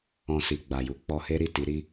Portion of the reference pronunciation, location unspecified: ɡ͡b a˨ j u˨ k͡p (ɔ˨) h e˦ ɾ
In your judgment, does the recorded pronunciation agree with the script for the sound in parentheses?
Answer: no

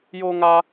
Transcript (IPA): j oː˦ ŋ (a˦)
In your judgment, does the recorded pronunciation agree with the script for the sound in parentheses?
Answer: yes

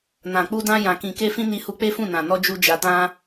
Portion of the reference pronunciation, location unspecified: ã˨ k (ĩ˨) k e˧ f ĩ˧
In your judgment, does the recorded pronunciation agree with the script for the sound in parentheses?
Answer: yes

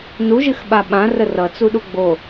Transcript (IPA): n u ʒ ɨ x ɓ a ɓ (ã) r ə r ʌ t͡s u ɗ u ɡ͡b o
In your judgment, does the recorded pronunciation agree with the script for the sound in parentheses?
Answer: yes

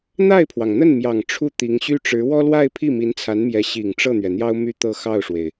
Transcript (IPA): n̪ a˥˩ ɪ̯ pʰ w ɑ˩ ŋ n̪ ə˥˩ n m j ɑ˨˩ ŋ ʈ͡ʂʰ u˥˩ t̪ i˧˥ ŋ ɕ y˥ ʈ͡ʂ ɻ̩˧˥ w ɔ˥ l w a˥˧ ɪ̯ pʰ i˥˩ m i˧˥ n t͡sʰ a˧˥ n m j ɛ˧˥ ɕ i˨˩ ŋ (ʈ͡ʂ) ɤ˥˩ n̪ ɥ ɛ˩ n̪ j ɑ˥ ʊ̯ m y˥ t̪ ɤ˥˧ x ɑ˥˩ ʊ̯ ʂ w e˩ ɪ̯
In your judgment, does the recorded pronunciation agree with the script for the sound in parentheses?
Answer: yes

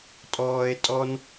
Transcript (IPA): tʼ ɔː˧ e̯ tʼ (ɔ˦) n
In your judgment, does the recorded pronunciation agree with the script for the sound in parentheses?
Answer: yes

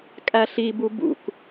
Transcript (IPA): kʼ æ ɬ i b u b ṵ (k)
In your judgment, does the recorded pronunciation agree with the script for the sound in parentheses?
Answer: yes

